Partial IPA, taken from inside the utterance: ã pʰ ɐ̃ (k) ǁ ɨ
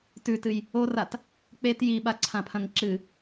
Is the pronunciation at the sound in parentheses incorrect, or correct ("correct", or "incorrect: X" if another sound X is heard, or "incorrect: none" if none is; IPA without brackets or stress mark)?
incorrect: ŋ